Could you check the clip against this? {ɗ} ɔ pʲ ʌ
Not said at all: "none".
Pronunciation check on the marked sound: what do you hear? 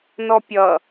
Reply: n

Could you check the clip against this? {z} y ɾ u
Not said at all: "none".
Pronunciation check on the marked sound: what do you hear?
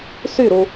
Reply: s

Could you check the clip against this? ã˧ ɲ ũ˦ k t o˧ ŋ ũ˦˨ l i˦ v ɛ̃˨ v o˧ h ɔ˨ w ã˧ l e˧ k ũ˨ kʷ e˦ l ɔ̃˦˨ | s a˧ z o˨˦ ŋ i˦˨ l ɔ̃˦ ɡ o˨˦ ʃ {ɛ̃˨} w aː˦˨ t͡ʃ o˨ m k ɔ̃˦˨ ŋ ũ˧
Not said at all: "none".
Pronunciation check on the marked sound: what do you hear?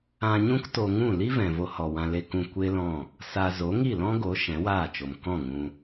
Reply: ɛ̃˨˦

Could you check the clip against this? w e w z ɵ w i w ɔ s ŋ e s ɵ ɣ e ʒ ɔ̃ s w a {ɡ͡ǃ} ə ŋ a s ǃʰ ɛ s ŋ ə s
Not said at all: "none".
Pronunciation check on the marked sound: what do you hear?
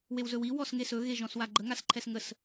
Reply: ɡ͡ǃ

